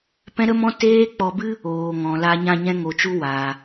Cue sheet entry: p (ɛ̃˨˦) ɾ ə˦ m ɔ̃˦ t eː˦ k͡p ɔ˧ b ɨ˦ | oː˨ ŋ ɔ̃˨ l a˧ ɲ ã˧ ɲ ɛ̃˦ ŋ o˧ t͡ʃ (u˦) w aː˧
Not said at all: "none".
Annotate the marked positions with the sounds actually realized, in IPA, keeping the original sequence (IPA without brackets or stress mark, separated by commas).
ɛ̃˦, u˦